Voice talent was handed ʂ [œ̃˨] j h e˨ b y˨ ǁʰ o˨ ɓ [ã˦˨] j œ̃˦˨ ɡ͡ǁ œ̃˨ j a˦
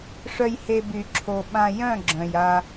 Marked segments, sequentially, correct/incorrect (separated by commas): incorrect, incorrect